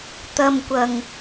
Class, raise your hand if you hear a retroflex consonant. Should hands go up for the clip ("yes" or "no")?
no